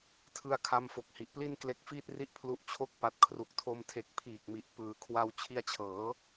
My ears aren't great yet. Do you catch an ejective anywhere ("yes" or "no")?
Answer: no